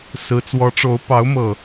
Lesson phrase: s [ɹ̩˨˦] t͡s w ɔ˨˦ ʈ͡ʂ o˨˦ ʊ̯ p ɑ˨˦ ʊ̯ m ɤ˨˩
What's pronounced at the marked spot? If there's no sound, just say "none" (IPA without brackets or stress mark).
ɹ̩˨˦